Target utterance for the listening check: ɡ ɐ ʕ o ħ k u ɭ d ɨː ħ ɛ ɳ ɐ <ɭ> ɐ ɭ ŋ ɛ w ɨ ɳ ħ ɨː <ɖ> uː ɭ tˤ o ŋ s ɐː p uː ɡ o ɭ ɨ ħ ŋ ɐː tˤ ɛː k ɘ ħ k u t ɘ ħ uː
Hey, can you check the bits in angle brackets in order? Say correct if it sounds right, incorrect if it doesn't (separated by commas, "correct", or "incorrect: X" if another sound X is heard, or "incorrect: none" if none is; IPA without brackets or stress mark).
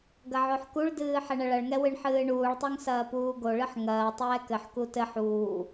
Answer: correct, incorrect: ɳ